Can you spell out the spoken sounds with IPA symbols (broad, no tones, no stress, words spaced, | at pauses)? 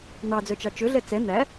n̪ɑd͡zœt͡ʃɑ t͡ʃɵɮɛ t͡sɛ n̪æ